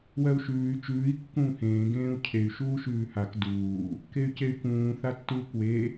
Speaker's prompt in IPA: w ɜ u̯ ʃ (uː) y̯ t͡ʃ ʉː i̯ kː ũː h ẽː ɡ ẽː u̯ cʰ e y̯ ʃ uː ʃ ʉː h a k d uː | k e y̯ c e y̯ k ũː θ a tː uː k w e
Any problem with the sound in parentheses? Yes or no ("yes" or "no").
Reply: yes